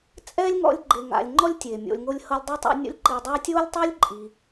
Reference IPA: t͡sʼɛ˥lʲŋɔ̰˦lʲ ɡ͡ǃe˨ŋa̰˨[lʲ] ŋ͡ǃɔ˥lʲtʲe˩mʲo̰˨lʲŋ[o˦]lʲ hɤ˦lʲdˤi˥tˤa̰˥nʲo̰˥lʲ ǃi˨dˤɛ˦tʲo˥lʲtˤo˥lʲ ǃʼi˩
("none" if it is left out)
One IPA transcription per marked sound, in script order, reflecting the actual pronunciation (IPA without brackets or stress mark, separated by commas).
lʲ, o˦